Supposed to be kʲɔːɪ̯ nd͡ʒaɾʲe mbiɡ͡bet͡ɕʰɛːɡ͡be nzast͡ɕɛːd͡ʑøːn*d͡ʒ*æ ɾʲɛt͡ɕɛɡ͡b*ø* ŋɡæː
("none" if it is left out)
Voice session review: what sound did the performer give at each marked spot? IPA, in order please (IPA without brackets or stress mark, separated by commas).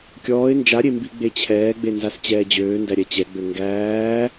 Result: d, ø